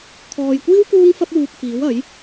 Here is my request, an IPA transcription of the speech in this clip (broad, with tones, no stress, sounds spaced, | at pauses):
kʰ ɔː˨ j kʷ iː˥ w k uː˥ ŋ f ɐ˥ p̚ w uː˧ k̚ f iː˨˥ w ɐ˨˥ j